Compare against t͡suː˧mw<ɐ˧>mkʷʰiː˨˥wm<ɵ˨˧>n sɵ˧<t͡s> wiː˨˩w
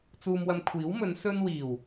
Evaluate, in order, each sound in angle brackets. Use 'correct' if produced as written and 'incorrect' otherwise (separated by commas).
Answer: correct, correct, incorrect